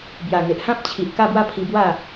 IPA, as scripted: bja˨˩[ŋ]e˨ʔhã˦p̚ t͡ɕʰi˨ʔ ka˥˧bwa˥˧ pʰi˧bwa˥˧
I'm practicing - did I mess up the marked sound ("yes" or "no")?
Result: no